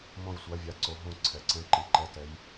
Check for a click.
present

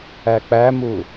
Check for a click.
absent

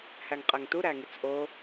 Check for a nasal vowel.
absent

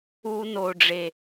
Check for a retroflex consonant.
present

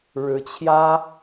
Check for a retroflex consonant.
present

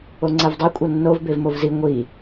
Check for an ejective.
present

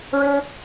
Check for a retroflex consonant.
present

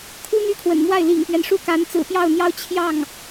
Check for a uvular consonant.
absent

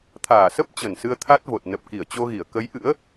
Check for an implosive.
absent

